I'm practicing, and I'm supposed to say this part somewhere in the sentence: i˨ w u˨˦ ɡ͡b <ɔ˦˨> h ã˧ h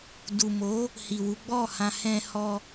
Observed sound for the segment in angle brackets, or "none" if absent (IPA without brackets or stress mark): ɔ˦˨